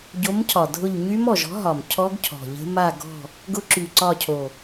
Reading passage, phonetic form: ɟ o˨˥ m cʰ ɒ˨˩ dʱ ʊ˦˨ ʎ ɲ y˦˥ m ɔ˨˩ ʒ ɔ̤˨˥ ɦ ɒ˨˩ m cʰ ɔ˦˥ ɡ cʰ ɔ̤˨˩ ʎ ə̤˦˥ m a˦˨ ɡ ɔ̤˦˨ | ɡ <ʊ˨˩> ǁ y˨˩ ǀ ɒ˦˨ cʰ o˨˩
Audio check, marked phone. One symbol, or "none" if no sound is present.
ʊ˦˥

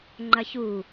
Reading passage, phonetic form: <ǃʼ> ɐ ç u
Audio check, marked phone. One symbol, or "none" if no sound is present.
ŋ͡ǃ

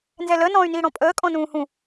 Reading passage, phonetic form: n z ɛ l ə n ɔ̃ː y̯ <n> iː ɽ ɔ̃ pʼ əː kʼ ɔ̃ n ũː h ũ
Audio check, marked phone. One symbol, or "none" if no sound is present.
n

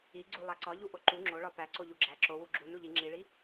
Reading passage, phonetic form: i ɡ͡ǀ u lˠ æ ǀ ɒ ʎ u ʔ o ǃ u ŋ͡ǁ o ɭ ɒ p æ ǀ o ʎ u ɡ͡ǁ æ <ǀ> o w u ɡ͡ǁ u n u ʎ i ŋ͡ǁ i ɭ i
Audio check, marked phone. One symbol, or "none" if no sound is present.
ǁ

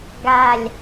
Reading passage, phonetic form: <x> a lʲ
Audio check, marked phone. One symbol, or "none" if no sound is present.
ɡ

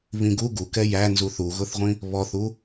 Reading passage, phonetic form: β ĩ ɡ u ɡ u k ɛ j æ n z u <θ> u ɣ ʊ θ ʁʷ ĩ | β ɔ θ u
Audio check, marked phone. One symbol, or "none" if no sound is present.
θ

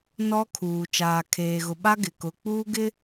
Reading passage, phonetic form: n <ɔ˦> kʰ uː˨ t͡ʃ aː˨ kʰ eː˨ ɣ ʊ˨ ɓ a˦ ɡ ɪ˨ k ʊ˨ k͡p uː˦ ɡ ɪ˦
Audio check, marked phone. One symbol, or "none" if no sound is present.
ɔ˦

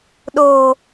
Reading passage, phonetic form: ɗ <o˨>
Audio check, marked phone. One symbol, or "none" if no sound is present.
o˨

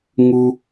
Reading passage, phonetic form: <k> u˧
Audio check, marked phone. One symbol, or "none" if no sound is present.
ŋ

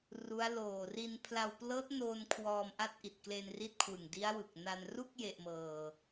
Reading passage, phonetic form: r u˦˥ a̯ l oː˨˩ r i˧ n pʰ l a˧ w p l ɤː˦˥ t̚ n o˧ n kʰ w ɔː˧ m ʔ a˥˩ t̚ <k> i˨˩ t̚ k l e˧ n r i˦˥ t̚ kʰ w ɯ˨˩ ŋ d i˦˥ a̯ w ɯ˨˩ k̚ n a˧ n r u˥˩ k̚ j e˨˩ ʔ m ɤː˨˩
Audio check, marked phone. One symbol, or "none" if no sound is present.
ʔ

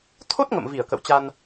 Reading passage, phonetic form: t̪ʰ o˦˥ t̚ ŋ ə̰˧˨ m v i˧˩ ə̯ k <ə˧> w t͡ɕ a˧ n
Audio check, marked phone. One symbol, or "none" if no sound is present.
ə̰˧˨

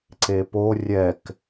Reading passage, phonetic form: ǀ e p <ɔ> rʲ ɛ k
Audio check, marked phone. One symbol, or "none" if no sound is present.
o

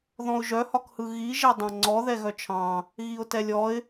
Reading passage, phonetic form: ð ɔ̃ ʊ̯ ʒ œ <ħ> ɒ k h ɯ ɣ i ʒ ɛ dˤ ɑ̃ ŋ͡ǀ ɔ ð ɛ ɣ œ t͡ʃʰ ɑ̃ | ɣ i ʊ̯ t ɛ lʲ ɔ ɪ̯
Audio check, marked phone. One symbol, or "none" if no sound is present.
h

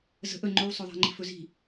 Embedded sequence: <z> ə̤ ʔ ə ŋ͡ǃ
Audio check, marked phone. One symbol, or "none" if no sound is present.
z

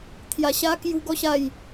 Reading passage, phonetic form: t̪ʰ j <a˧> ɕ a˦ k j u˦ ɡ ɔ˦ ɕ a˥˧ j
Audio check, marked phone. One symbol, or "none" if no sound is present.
a˧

